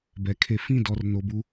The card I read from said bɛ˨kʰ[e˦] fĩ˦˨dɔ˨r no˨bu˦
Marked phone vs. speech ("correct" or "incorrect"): correct